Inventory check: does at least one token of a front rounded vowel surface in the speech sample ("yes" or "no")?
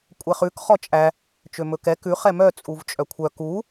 yes